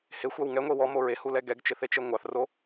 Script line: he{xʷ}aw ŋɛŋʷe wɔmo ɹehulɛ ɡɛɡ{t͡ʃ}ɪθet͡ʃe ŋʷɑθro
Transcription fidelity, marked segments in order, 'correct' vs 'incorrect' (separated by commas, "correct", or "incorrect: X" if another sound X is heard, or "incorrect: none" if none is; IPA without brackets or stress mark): correct, correct